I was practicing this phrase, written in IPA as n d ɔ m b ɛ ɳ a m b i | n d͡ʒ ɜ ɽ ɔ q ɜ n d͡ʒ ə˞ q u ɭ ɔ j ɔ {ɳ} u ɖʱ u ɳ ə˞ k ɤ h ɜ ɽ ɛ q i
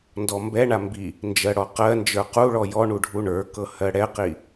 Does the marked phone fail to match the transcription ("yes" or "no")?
no